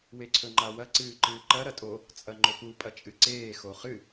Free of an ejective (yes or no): no